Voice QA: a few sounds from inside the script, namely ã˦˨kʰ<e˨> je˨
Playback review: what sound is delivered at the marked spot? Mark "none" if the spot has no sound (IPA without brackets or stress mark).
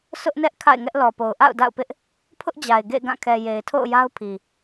ɛ˨